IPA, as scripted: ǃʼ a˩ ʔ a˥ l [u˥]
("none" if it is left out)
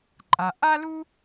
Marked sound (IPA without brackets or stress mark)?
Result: u˥